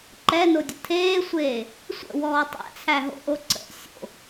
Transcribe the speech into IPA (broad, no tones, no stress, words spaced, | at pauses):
ǃɛnodʲə tʰeːsʷeː | sʷə̰wɔː tˤæ̰t͡sʰæɦo̰ʔo ǀə̰ sʲo̰